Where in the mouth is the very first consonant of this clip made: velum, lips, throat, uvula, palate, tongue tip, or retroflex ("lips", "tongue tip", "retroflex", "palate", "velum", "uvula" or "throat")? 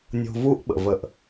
tongue tip